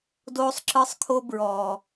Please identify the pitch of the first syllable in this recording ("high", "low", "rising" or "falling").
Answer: high